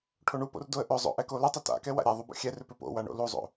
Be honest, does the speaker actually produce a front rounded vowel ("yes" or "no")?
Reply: yes